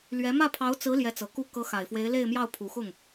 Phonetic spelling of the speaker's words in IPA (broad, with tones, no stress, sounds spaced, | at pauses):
l ɥ ɛ˧˥ m ä˥˩ pʰ ɑ˧˥ ʊ̯ t͡s ɹ̩˧˥ l j ɛ˧˥ t͡s ɤ˨˩ k u˥˩ k ɤ˧˥ x a˨˩ ɪ̯ f w e˧˥ ɪ̯ l e˥˧ ɪ̯ m j ɑ˥˩ ʊ̯ pʰ u˨˩ x ʊ˥˩ ŋ